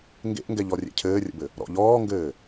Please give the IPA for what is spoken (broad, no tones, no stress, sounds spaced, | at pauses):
ŋ ɡ ḛ ʔ ŋ ɡ ɛ ʎ ɔ rʲ ḛ cʰ ɘː rʲ ə̰ b ɘ | ɾ ɔ̰ ʎ ɔː ŋ ɡ ɘː